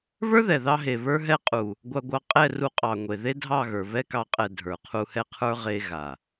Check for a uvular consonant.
present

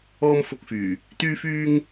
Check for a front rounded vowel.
present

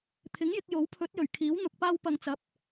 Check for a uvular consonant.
absent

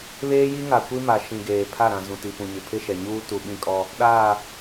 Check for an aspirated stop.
present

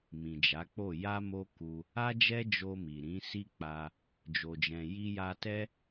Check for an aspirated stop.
absent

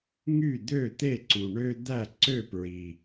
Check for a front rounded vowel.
present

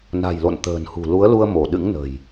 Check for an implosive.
present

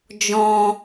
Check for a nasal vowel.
present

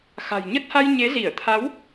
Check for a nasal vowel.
absent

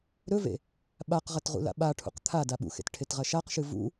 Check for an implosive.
present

